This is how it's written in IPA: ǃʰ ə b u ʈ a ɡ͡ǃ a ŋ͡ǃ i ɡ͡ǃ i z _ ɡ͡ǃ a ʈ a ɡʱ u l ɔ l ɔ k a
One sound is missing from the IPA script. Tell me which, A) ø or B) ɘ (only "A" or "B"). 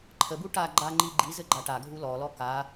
B